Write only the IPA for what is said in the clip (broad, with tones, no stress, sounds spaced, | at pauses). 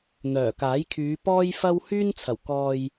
n̪ œː˨˩ k aː˨˥ j kʰ yː˨˧ p ɔː˥ j f ɐ˥ w h yː˥ n t͡sʰ ɐ˨˩ w k ɔː˨ j